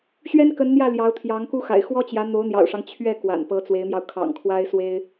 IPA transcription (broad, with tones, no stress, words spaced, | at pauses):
ɕɥɛ˥nkə˧˥nn̪jä˥˩ ljɑ˧˥ʊ̯t̪ʰjɑ˧˥ŋku˥xa̰˨˩ɪ̯ xwɔ˥t͡ɕjä˧˥ n̪o˧˥ʊ̯n̪jɑ̰˨˩ʊ̯ʂɑ˦ŋ t͡ɕʰɥɛ˥˩ kwa̰˨˩npɤ˧˥t͡swe˧˥ɪ̯mjɑ˧ʊ̯ kʰɑ̰˨˩ŋkʰwa˥ɪ̯ swe˥ɪ̯